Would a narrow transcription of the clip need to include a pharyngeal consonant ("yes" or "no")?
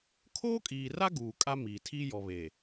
no